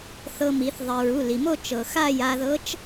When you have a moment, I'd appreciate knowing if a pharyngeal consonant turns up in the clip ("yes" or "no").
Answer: no